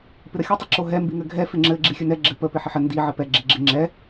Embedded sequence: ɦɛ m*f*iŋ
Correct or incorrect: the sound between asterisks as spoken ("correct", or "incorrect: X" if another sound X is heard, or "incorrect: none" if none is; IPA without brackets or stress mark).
incorrect: b